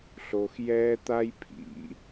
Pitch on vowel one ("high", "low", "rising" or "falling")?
low